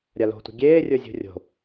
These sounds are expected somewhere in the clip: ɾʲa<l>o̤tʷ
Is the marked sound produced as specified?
yes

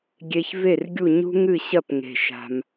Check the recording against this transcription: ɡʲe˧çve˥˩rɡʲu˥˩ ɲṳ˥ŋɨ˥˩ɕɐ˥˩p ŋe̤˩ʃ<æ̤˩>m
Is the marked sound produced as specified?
no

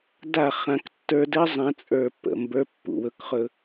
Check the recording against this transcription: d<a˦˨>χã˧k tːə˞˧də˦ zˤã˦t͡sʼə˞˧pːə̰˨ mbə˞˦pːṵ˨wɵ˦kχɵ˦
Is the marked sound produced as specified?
yes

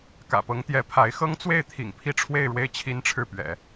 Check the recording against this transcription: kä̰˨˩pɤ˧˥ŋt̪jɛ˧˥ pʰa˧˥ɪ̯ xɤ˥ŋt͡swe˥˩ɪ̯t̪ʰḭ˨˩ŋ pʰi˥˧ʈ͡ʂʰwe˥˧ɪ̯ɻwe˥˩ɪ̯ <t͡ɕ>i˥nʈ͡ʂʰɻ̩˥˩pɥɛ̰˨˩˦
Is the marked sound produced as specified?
no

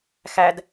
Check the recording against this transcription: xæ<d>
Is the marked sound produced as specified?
yes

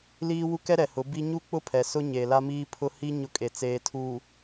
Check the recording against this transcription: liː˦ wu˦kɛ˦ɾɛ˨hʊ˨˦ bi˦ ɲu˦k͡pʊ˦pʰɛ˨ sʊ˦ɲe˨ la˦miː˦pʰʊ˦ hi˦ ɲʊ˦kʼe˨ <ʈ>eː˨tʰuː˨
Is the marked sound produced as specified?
no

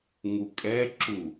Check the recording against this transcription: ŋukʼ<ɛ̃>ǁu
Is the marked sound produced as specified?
no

